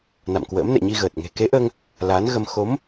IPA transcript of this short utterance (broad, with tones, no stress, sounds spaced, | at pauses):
n a̰˧˨ m k w ə̰ː˧˥ m n ɛ̰˧˨ ɲ i˧ ɣ əː˨˩ t̚ ŋ e̤˨˩ k e˨˦ ʔ əː˧ ŋ | l aː˨˦ n ɣ ə˧ m x o˨˦ m